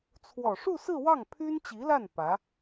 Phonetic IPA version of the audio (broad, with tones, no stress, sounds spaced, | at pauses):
t͡sʰ w ɔ˨˩ ʂ u˥˧ s ɹ̩˥˧ w ɑ˥˩ ŋ pʰ y˥ n t͡ɕ i˧˥ l a˥˩ n p ä˧˥